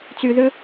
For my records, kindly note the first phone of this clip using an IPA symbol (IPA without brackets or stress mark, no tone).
t͡s